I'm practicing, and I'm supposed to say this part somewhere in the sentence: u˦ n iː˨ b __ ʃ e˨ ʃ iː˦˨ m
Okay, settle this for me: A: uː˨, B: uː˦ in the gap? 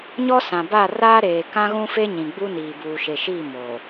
A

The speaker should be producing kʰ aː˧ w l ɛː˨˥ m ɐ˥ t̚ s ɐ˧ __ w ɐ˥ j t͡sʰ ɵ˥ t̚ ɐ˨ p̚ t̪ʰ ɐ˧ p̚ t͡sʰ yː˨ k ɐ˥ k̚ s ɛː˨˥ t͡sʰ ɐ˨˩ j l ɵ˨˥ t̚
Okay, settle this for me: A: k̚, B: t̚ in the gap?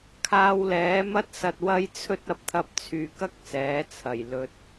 B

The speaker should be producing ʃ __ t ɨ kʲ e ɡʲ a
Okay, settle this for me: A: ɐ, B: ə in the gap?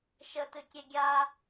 B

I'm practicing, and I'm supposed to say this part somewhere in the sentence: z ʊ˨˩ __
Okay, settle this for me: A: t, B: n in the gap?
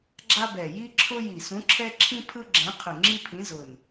B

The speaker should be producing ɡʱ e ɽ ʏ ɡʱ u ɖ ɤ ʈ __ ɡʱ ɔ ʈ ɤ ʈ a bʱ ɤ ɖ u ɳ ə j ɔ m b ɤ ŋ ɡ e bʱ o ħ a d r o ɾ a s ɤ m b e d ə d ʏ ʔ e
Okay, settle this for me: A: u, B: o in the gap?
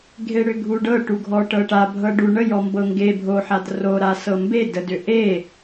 A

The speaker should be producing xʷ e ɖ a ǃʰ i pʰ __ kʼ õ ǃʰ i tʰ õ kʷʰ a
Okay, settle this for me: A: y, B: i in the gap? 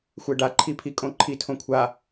B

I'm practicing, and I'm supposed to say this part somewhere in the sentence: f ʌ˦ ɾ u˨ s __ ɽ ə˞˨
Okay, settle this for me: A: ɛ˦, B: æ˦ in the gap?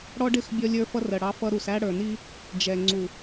B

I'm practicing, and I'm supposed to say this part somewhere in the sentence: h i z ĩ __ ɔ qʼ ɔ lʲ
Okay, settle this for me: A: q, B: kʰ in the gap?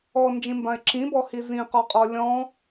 A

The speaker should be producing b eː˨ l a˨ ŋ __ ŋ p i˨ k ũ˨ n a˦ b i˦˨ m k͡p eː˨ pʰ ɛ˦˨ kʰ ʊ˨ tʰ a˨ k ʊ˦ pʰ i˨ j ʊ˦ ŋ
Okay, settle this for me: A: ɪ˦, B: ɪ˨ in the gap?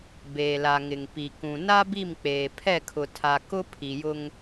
B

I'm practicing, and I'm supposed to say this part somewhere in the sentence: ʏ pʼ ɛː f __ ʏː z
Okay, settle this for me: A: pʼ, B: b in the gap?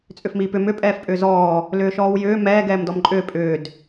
A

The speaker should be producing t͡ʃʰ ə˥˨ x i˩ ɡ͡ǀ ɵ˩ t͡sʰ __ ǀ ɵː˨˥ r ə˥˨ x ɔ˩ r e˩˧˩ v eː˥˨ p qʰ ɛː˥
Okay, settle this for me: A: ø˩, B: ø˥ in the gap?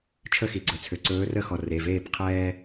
A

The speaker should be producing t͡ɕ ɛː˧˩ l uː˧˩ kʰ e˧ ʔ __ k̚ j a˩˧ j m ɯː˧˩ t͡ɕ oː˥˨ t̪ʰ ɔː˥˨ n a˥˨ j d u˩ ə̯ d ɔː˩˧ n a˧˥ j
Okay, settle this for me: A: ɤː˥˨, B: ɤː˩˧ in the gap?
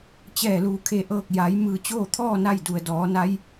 A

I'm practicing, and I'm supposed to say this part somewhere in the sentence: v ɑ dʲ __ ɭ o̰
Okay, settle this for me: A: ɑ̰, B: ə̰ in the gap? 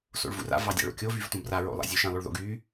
A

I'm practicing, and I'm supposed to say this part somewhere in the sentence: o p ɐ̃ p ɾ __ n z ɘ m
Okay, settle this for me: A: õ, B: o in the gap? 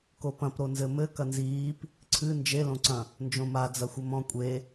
B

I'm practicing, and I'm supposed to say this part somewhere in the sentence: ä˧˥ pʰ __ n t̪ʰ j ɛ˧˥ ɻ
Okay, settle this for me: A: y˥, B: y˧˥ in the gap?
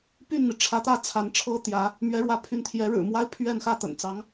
B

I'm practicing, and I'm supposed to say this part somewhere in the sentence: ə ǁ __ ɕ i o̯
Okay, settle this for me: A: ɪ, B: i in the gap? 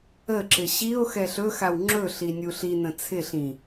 A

